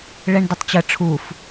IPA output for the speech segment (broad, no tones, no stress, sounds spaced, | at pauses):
ɭ ɛ ɳ d ə tˤ t͡ɕ ə ʈ͡ʂʰ u f